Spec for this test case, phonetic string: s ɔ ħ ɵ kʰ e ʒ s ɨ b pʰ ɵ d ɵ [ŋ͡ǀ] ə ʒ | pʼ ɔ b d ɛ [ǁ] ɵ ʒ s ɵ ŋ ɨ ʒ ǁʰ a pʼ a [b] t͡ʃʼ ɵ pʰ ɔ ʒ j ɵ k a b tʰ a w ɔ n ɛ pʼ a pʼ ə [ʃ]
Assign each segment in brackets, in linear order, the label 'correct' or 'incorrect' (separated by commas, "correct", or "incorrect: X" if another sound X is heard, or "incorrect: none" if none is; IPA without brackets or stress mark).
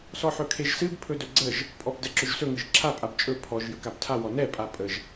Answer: incorrect: ɡ͡ǀ, correct, correct, incorrect: ʒ